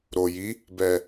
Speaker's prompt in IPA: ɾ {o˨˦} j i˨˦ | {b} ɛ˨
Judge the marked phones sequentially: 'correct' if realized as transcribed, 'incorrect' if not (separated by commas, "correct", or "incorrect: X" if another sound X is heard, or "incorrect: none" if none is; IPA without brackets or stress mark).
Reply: incorrect: o˨, correct